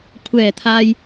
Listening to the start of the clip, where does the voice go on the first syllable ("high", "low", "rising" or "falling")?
low